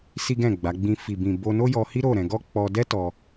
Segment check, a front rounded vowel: absent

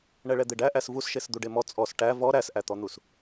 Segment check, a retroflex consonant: present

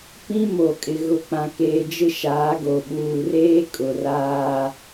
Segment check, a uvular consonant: absent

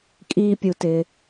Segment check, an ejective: present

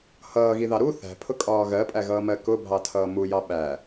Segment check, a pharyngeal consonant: absent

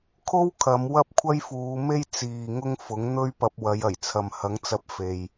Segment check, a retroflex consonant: absent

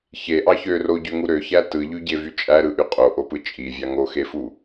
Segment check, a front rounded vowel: present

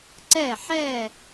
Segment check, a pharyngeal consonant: present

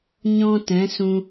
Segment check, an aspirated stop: absent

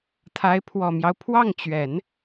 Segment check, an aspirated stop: present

